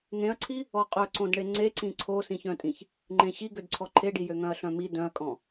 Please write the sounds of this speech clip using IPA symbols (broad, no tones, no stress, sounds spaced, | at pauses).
ŋ ẽ ɐ̯ ǀʰ i | ɔ qʼ œ ǀ õ d ɳ e ŋ͡ǀ e ǀ ĩ ǀʰ o s ĩ ç œ̃ tʼ ĩ ç | ŋ͡ǃ ẽ ɕ i ɡ ø d ǀʰ ɔ ǃʰ e ɖ i j ø ŋ œ̃ ɐ̯ ɬ œ̃ m i d œ̃ ɐ̯ kʼ ɔ̃